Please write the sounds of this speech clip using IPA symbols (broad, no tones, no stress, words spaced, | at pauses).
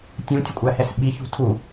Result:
tʲũtʲəkʷʼæhɛs ɓiçṳ tʰu